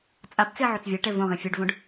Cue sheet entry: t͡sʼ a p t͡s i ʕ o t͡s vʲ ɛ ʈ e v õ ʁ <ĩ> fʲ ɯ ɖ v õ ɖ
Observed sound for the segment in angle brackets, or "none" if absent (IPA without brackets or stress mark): ĩ